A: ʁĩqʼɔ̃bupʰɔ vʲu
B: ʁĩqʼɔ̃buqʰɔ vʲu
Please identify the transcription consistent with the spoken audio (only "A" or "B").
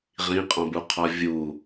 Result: B